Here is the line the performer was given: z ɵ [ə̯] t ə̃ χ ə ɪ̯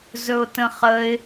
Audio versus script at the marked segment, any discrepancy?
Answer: yes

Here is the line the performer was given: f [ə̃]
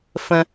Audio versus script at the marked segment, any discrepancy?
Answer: no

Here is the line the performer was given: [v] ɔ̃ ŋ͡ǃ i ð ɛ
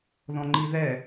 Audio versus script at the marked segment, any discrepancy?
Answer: yes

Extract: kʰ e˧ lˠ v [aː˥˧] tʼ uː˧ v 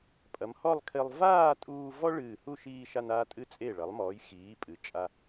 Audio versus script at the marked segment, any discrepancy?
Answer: no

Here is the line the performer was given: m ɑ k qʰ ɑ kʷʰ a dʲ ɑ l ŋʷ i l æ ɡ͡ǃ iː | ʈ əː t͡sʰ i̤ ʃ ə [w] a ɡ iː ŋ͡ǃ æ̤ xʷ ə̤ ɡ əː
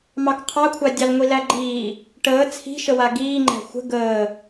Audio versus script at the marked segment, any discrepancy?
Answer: no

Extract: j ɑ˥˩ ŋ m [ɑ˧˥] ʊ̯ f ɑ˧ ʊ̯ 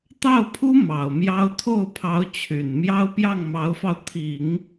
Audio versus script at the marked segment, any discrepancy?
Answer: no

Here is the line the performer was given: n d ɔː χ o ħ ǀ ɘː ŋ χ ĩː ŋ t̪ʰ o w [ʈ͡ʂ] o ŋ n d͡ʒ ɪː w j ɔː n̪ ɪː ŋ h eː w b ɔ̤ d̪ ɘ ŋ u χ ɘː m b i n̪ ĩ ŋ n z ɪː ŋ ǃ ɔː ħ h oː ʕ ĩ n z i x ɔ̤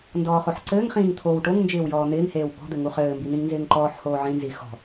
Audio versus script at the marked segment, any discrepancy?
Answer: yes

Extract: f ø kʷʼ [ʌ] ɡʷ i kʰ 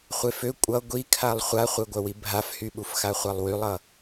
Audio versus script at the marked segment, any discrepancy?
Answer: no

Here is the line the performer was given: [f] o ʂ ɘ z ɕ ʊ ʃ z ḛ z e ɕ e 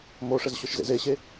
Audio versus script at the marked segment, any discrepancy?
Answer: yes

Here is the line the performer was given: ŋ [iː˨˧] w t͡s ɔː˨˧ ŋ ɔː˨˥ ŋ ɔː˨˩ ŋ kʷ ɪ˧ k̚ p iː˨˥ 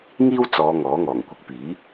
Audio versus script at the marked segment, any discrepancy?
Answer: yes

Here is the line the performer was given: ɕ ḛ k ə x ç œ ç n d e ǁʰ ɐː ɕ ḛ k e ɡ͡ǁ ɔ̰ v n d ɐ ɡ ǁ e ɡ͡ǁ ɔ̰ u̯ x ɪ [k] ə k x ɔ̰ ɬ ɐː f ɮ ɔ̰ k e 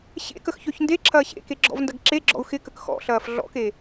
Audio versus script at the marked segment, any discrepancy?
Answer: no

